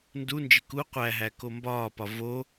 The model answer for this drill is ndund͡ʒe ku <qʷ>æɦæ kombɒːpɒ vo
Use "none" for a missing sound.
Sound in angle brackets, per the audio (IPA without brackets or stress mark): qʷ